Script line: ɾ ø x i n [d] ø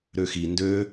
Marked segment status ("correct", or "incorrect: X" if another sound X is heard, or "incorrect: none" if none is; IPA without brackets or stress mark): correct